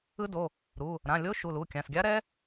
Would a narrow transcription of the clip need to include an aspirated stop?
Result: no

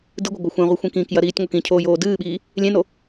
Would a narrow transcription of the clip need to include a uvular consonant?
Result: yes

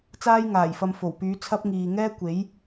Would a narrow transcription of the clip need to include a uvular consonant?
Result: no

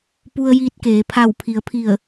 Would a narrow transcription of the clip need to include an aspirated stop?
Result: yes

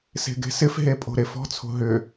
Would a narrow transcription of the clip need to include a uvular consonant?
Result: no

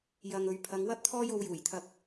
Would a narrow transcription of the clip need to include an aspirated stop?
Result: yes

